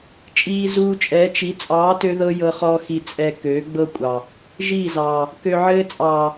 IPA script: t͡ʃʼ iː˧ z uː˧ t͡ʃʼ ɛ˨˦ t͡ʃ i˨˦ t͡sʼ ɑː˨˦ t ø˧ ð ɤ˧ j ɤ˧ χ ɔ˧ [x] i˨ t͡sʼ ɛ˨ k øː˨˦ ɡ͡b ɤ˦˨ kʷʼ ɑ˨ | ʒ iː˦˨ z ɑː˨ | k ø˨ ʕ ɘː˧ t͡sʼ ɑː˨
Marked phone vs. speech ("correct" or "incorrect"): correct